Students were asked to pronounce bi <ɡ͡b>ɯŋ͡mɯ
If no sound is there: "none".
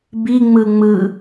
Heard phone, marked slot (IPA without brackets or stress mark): ŋ͡m